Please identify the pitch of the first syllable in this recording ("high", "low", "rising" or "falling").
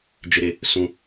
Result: high